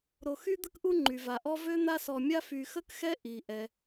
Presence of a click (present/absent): present